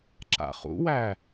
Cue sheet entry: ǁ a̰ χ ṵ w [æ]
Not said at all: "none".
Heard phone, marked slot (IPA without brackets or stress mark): æ